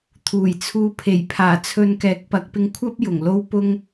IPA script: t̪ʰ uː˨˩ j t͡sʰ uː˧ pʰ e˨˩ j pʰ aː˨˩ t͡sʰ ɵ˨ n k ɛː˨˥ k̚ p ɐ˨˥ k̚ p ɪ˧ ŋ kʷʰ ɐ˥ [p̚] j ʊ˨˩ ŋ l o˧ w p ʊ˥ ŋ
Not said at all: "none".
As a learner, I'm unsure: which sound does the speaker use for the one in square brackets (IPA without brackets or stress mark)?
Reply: p̚